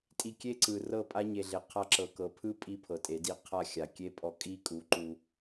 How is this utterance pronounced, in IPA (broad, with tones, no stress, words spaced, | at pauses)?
tʼi˧kʲe˦ǀɯ˨rɤ˦˨ pʼa˦ɲe˨ɮe˨ qʰa˧ǁɤ˨kɤ˨pʰɯ˦ pʼi˦pʰɤ˨tʼe˨˦di˦ qʰa˦˨xʲa˨kʲe˦ pʼɔ˧kʼi˦kʼu˨˦ǃu˧